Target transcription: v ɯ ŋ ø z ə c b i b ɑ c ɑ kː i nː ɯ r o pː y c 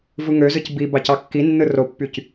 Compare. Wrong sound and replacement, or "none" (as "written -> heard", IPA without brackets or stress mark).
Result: ə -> ɯ